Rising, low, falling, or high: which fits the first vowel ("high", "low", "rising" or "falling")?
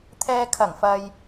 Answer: low